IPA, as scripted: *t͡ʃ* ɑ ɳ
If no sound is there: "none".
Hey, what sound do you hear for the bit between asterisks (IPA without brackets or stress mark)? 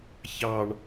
ç